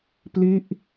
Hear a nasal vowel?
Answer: no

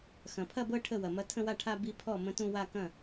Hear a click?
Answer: no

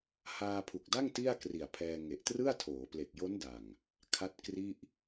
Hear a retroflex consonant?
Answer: no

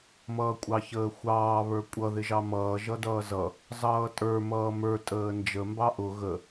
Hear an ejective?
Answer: yes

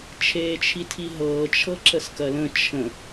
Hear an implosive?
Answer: no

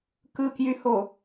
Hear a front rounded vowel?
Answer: yes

